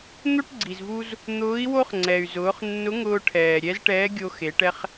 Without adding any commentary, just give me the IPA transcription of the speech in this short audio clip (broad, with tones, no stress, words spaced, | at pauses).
n̪o˥ʈɡ͡ǀi˩zvu˧z | n̪ʊː˧˥i̯ wo˥χŋ͡ǀɛ˩y̯zʊː˩˧χ nːʊ˧˥ŋʊː˧ ʈʰɛː˩ ɾʲɛ˧˥zʈɛː˧˥ɡʲo˧xe˩˧ʈ ɛ˧χ